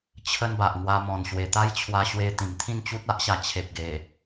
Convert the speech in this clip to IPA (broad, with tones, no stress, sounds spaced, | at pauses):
t͡ɕʰ ə˦ n b a˨ ʔ ŋ w a˧ m ɔ̃˨˩ n ɕ w e˨˩ t̪ a˦ j t͡ɕʰ w a˧ ɕ w e˧ t̪ ĩ˨˩ m t̪ʰ ĩ˥˧ n t͡ɕ u˦ t̚ a˦ ʔ ɕ a˨˩ t͡ɕʰ e˨ p̚ ɡ e˨˩